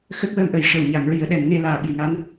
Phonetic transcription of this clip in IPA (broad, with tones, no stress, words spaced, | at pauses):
xə˦˥k̚wəː˧mʔə˨˩j ʂə˨˩wɲa˨˩˨ŋɹi˨˩˦ə̯ ɗɛ˨˩n ŋe˧ laː˨˩ɓi˨˩˨ŋa˧˥n